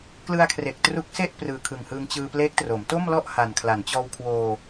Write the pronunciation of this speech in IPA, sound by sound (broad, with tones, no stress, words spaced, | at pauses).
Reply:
klɯ˧a̯kʰre˨˩k̚ tru˦˥k̚se˥˩ʔ prɯː˨˩kʰɯ˨˩ŋhɯː˧ŋ t͡ɕɯː˧pleː˦˥k̚tro˩˦m to˥˩mlɔ˥˩ʔha˨˩n kʰla˩˦nt͡ɕɔː˧wkʰwoː˧